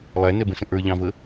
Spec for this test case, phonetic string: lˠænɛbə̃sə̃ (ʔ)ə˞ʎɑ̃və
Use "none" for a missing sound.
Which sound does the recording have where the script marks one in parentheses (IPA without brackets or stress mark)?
ʔ